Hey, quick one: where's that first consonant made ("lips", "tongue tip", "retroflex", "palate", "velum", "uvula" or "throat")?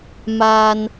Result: lips